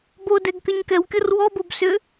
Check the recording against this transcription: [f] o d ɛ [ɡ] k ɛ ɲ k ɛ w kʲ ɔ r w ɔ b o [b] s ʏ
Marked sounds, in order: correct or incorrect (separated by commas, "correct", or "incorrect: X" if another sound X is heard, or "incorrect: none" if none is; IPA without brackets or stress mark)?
incorrect: b, correct, correct